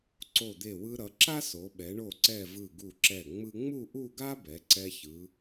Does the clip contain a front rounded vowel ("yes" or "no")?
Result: no